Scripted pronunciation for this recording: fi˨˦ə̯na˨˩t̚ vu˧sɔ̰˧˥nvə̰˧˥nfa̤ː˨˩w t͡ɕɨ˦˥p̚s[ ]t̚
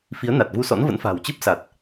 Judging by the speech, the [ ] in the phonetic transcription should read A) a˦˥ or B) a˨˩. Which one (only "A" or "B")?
B